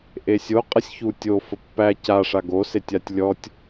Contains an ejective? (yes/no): yes